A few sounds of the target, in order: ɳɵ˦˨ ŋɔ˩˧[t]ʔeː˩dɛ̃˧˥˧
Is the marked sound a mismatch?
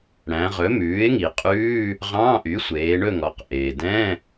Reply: yes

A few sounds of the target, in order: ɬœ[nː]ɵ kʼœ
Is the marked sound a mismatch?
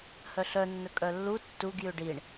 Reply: no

